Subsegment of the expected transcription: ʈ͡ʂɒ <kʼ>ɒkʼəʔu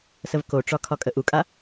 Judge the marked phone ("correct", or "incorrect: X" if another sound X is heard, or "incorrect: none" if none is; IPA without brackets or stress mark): incorrect: kʰ